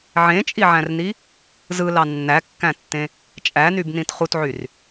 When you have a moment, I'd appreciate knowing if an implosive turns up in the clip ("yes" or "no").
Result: no